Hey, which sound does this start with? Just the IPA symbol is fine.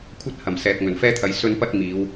kʷʰ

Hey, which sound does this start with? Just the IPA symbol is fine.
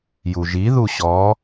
j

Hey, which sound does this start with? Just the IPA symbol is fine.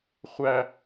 χʷ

